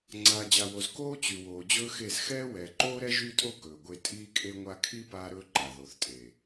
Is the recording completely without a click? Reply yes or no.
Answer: no